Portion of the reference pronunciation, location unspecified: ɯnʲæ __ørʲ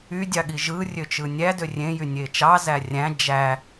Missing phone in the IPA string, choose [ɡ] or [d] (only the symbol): d